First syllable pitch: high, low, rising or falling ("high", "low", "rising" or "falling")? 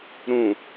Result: low